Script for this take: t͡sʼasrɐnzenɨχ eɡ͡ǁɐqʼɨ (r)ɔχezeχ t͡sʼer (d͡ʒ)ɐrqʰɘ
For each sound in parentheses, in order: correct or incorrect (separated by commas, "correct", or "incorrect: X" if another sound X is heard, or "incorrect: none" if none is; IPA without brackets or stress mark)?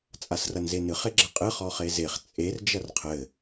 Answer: incorrect: χ, correct